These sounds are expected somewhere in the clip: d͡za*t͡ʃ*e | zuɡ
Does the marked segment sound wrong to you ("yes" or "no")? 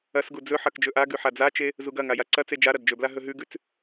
no